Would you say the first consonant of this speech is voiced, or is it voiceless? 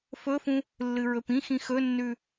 voiceless